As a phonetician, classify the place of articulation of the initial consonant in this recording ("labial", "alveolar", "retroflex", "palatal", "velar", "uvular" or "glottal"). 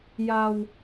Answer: palatal